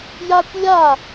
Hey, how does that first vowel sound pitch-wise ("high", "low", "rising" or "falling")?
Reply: high